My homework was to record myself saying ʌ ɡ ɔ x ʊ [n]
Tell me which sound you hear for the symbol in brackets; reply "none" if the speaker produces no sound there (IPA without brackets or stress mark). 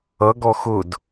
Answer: d